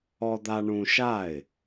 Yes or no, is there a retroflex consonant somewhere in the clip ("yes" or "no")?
yes